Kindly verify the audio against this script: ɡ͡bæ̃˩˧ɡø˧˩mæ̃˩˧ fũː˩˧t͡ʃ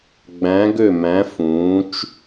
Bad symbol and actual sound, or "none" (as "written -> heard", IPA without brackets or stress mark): none